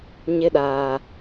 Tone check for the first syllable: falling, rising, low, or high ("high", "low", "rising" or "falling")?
high